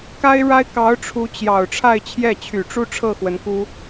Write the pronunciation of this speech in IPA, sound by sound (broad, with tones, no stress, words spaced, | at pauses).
ka˥ɪ̯ɻa˥ɪ̯ kɑ˧˥ʊ̯ ʈ͡ʂʰu˧˥t͡ɕjɑ˨˩ʊ̯ ʈ͡ʂʰa˥˧ɪ̯ t͡ɕʰjɛ˥˩t͡ɕʰy˨˩ ʈ͡ʂu˥ʈ͡ʂʰɤ˥˩ xwə˧˥nku˥